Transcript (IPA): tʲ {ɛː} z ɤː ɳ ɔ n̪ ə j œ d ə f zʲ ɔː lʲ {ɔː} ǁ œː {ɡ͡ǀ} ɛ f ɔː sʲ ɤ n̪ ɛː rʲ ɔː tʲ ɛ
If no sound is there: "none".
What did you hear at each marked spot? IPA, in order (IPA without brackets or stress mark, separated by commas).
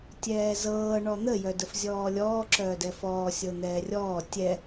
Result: ɛː, ɔː, d